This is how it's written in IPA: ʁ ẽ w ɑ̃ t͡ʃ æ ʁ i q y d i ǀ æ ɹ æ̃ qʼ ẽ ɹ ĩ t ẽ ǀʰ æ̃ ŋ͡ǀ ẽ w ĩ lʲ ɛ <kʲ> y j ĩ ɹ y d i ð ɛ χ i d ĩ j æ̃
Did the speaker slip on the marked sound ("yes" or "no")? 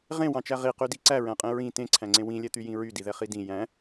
yes